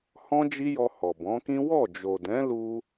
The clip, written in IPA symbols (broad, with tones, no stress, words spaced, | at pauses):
hɔ̃˦d͡ʒi˦jɔ˧ hɔ˨bɔ̃˨˦kĩ˦ wɔ˦˨ d͡ʒo˨dɛ̃˨˦lu˧